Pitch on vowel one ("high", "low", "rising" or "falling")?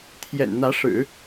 low